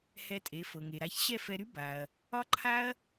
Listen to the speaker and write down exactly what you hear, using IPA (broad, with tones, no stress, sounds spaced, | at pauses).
h ɛ˧ tʼ e˩˥ f ɤ˩ ŋ e˩ ɾ a˧ ç ɕ ɛ˥˩ f ɛ˧ ɾ y˥ b a˩ ɐ̯ | ɒ˥ ǃʰ a˥ ɐ̯